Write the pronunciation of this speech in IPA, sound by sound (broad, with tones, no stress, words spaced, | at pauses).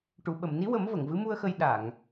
ʈu˨˩˨ɓə˨˩˨mni˧˥wə˨˩˦m və˨˩˨ŋvɨ˧˥mu˧ə̯xə˧j ɗa˨˩˨ŋ